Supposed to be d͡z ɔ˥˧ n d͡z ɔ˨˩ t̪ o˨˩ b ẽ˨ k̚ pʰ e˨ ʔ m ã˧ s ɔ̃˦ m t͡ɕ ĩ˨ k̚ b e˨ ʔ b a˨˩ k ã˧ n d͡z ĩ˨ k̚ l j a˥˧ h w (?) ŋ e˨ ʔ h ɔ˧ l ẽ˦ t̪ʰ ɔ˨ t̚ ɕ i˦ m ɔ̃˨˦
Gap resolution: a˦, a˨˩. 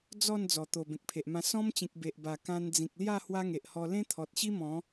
a˦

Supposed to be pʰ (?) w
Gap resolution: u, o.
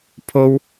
o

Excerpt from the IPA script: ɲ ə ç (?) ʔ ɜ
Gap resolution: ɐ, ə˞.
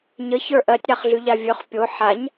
ə˞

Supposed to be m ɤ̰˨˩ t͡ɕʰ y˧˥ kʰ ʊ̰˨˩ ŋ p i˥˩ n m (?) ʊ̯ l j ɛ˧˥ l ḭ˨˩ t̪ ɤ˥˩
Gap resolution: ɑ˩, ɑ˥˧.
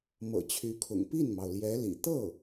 ɑ˩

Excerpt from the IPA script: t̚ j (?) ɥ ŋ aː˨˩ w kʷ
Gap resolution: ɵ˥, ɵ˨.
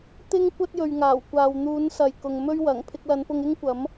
ɵ˨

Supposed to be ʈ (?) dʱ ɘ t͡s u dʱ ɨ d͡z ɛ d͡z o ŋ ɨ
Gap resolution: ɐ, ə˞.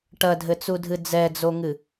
ɐ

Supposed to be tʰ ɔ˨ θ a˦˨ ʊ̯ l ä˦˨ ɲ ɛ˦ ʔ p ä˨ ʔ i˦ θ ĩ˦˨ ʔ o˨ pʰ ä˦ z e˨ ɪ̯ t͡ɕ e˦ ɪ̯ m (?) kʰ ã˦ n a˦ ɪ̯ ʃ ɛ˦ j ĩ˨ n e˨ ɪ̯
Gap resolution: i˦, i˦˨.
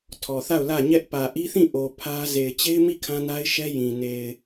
i˦˨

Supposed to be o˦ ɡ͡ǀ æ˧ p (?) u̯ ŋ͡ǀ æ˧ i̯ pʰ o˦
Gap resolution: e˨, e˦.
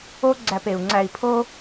e˨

